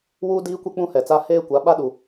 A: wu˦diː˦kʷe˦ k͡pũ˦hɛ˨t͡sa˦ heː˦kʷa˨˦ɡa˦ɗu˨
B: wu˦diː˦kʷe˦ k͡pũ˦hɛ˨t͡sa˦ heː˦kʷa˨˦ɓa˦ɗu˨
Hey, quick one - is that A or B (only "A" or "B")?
B